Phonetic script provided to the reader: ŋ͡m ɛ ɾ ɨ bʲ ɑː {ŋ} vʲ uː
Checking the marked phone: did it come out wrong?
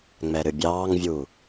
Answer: no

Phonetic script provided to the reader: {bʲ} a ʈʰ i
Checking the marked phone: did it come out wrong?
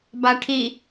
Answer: yes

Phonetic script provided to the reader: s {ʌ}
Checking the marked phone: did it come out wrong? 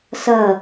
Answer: no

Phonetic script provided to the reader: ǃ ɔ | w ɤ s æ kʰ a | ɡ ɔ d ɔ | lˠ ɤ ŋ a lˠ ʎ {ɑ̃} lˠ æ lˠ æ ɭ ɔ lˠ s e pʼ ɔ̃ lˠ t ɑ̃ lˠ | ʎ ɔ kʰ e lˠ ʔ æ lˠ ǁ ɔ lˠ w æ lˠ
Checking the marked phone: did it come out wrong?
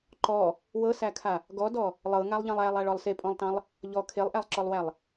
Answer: no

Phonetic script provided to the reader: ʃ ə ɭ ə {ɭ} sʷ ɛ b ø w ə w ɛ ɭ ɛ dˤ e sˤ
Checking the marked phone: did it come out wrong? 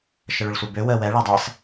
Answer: no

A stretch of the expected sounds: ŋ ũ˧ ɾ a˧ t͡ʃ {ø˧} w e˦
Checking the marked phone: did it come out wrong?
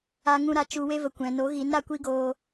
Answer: yes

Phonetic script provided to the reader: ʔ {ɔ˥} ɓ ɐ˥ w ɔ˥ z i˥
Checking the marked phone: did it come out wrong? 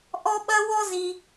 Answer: no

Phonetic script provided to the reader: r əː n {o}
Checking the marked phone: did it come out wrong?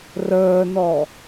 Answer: yes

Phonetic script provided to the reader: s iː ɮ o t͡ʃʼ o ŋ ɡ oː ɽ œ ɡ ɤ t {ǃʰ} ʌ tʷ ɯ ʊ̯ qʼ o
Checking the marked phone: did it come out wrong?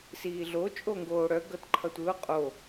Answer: no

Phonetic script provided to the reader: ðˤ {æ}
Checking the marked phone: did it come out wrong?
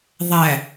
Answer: no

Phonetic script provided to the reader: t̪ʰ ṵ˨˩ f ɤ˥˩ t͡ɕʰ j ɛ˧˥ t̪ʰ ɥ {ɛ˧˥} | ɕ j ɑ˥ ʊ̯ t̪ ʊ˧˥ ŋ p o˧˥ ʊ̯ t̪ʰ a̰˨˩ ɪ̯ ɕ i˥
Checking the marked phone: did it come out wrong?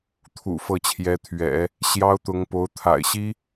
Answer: yes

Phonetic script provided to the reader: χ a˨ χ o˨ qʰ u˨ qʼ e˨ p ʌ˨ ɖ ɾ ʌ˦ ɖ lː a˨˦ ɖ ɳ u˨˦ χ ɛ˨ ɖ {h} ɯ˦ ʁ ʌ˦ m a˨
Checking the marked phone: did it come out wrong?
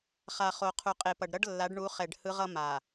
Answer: no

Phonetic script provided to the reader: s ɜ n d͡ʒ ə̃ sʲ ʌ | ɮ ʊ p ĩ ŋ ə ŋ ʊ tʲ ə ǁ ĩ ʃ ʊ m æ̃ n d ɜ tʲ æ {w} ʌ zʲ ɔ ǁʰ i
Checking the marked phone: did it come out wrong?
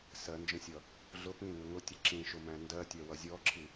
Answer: no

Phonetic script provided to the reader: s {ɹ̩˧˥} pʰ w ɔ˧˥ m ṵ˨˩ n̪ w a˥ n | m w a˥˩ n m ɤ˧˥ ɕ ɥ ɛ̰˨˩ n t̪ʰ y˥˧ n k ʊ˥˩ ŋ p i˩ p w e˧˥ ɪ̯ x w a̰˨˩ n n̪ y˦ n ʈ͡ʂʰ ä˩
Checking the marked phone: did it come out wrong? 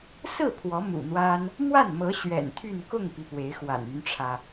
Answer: yes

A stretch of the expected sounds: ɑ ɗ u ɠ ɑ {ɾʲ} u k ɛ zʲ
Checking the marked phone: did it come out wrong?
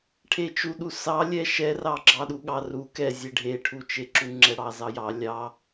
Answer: yes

